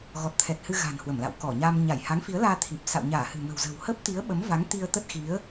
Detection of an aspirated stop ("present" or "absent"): present